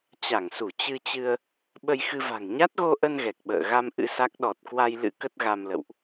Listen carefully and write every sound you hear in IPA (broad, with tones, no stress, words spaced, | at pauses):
t͡ɕa˧˩ŋsu˧˩ t͡ɕɨ˧t͡ɕɨ˧ə̯ | ɓə˧jxɨ˧va̤˨˩ŋ ɲa˦˥t̚ɣo˧ʔə˧n ɣɛ˨˩k̚ɓə̰ː˧˨ ɣa˧m ʔɨ̰˧˥sa˦˥k̚ ɗɔ˨˩t̚kwa˧jlɨ̰˧˥ kə˦˥t̚ɣa˧mlə̰˧˨wʔ